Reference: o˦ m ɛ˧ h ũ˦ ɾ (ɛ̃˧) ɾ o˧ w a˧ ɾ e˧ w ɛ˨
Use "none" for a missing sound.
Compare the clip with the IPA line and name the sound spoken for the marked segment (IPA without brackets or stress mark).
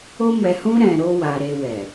ɛ̃˧